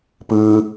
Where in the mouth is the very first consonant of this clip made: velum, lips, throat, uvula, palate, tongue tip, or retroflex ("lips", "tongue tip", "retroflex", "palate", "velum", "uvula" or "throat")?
lips